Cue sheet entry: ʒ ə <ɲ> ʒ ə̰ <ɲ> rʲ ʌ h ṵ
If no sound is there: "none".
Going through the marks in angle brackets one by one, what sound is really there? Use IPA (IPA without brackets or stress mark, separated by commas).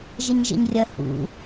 ɲ, ɲ